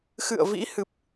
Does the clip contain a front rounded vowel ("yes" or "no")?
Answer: no